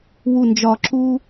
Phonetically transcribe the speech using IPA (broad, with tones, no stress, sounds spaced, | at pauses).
w u˨˩ n d͡ʒ ɒ˨˩ ǁ u˦